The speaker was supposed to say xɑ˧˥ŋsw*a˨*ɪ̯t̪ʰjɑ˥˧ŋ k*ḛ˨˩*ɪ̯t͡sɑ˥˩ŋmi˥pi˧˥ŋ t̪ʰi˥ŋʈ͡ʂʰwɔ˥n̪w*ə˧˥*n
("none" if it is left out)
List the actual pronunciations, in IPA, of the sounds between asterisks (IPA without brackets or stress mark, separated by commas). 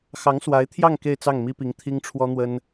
a˧˥, e˥˧, ə˥